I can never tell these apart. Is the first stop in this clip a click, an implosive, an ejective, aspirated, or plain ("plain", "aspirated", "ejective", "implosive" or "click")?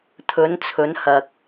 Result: aspirated